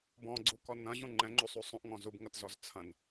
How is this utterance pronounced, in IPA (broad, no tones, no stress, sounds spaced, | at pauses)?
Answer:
b ɔ̃ ɡ͡ǀ u k ɔ n ɐ̃ ʑ ũ ŋ͡ǃ ɛ̃ ŋ͡ǃ u sˤ u sˤ ũ ʔ ŋ ɔ̃ z u b ŋ ɐ t z ɔ z t͡sʰ ɐ̃ n